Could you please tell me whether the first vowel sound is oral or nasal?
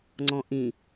nasal